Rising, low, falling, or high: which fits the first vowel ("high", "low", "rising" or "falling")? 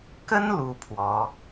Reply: high